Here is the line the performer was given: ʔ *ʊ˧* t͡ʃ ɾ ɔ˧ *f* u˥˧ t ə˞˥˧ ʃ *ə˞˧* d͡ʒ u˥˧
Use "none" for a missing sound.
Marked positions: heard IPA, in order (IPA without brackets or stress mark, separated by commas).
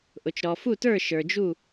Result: ʊ˧, f, ə˞˧